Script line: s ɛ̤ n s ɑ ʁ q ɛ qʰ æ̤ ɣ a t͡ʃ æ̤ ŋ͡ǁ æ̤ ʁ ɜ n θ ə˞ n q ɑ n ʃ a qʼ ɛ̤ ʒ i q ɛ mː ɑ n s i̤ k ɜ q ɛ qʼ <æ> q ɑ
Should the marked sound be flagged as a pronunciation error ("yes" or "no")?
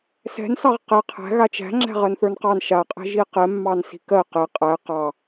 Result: no